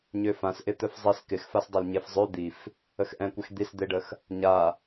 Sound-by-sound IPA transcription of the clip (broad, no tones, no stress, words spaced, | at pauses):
ɲøfãsʔɪ t̪œfzˤis kɪxfasdˤøl ɲefzˤø d̪if | əxʔɛ̃kʷɛx d̪isd̪eɖəx | ɲa